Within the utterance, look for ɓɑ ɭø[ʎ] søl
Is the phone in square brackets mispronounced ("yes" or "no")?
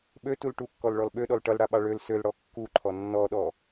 yes